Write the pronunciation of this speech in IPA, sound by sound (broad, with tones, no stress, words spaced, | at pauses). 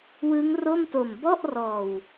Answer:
wɯ˦˥ŋro˥˩mto˨˩m bɔ˥˩ʔrɔː˨˩w